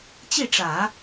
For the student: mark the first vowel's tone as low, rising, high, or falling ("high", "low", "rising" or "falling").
falling